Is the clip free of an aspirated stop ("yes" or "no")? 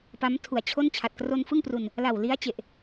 no